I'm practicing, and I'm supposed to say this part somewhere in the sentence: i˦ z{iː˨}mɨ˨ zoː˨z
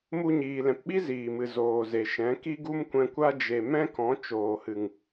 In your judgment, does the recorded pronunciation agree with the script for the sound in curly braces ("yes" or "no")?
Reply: yes